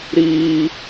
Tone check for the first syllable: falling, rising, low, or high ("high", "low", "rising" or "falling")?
high